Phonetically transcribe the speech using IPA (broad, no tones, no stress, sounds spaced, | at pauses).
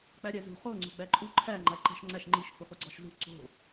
k͡p æ ɾʲ æ z ṳ χ o ŋ͡ǀ o̤ ɡ͡b æ ǃʼ u ǃʰ æ ŋ͡ǃ æ ǃ æ̤ ʃ ŋ͡ǀ æ ʃ ŋ͡ǃ i ʃ h u χ u ɡ͡ǀ ɒ ʃ z ṳ ǀ o̤